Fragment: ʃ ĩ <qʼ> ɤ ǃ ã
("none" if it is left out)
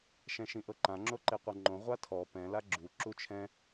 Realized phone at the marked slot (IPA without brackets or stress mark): ʔ